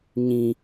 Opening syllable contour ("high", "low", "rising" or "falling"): low